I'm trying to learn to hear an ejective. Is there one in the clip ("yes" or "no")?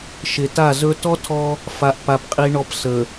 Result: yes